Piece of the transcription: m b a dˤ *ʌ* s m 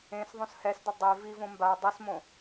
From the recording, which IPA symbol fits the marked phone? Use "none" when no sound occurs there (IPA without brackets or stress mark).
ʌ